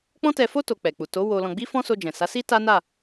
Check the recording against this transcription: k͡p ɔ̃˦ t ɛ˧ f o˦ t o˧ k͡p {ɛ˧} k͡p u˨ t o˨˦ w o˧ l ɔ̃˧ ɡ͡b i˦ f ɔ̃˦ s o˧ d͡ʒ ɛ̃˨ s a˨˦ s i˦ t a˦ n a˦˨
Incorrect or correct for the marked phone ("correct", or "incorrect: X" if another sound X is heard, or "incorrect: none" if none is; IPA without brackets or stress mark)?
incorrect: ɛ˨